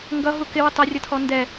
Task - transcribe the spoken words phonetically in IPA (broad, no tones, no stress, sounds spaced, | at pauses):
ŋ ɡ ʌ ɦ u k ɪ w ə tˤ ʌ rʲ ʌ tʰ ɔ n d ɛ